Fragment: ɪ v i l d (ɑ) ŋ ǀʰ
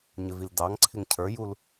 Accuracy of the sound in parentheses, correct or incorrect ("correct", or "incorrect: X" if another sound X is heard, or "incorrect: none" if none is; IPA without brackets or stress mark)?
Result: correct